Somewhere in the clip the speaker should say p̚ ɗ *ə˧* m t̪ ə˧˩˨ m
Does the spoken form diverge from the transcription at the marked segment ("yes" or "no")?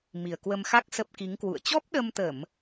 no